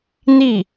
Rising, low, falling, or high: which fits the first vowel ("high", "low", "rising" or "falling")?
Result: falling